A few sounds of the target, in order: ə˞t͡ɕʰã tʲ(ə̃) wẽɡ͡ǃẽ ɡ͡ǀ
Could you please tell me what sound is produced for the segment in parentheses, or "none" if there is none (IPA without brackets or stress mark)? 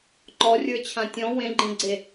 ɔ̃